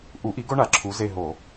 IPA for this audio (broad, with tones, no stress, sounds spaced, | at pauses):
ʔ u˨˥ ʔ i˨˥ ɡ o˦ ɳ a˨˩ ǁʰ u˨˥ z e˦˨ ɦ o˧˩˧